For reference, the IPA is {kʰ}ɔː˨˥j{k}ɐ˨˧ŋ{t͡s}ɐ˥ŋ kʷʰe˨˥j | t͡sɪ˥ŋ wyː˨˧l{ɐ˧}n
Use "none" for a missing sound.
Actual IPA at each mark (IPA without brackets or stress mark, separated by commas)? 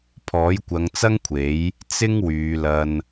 pʰ, kʷ, t͡s, ɐ˧